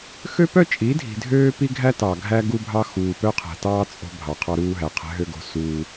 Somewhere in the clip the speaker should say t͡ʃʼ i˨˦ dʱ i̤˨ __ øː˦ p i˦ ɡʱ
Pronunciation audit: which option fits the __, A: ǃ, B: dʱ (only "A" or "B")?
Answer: B